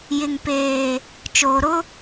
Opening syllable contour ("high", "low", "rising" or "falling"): low